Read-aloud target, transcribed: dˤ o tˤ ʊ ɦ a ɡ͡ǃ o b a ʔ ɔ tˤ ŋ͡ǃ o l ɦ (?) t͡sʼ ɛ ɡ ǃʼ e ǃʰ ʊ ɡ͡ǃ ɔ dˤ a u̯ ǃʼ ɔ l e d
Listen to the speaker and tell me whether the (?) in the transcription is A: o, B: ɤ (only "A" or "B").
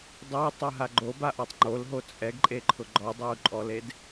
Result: A